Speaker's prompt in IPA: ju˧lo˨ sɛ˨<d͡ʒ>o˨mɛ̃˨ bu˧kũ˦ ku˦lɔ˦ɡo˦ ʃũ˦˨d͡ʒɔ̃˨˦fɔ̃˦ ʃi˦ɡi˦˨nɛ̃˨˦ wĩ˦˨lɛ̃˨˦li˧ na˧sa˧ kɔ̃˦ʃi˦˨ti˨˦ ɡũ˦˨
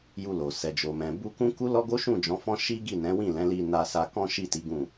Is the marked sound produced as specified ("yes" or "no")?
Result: yes